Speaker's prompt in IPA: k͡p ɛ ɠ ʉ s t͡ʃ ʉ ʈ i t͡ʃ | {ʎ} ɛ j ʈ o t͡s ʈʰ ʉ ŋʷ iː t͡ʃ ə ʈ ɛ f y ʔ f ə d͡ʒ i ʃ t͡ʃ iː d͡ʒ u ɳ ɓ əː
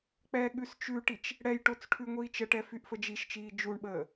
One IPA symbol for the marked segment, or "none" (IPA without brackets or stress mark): ɽ